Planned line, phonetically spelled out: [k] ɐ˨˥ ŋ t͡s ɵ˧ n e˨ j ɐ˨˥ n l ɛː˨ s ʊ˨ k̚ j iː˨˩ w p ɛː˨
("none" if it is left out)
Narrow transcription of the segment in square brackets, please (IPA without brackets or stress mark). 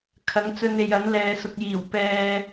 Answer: kʰ